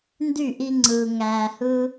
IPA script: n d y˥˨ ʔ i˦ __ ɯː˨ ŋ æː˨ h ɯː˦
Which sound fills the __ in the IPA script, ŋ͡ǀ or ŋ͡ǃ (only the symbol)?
ŋ͡ǀ